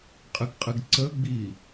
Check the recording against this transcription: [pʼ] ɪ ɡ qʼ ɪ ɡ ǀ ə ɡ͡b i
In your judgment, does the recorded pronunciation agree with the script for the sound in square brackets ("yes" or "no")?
no